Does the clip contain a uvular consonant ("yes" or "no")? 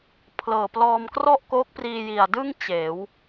no